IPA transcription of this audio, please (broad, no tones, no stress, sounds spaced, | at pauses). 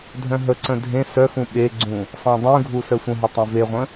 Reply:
dʱ œ̃ ɦ ə ǀ ə̃ dʱ ẽ s œ x ũ ɓ e ɡ͡ǀ ũ | sˤ ẽ dˤ ũ ɡʱ u s œ sʷ ə̃ ɦ u tˤ ẽ v e ʁʷ ə̃